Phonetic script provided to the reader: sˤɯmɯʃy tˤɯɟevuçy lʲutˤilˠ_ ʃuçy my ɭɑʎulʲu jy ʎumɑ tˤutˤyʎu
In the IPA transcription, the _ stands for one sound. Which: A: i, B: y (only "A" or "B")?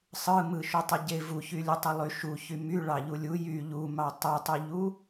B